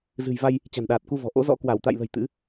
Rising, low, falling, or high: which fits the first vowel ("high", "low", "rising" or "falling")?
low